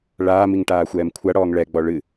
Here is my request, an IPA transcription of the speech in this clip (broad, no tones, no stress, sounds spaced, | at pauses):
ɭ aː m i ŋ ʈ aː xʷ ɛː m kʷʰ a ɽ ɔː ŋ ɭ ɛ ɡ͡b ɔ ɭ ɨ